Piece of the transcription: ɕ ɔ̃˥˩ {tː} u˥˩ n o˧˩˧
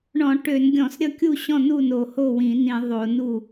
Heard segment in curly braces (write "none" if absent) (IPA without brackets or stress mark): n